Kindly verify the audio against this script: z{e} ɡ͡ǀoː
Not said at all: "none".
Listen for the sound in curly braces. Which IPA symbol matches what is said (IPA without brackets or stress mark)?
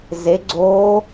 e